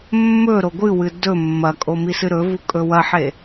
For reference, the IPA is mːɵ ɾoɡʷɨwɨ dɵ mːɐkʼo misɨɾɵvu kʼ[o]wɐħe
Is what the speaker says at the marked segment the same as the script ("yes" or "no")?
no